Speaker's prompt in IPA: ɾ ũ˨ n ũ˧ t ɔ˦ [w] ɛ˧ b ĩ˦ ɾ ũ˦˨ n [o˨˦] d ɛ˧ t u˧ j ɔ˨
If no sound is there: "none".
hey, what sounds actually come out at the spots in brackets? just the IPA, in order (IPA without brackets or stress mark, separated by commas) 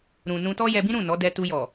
j, ɔ˨˦